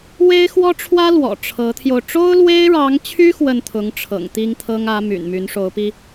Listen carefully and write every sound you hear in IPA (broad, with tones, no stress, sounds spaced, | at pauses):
w e˥ ɪ̯ x w ɔ˥ ʈ͡ʂʰ w ä˥ l w ɔ̰˨˩ ʈ͡ʂʰ ɤ˧˥ t̪ʰ j o˧ ʊ̯ ʈ͡ʂ o˥ ʊ̯ l w e˥ ɪ̯ ɻ ɑ˧˥ ŋ t͡ɕʰ y˥ x w ə˥˩ n t̪ʰ ʊ˧˥ ŋ ʈ͡ʂʰ ɤ̰˨˩ ŋ t̪ i˥ ŋ t̪ʰ ɤ˥ ŋ ä˧˥ m y̰˨˩ n m y˧˥ n ʂ o˧˥ ʊ̯ p i˧